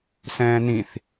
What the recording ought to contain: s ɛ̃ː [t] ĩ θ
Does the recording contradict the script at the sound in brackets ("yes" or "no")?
yes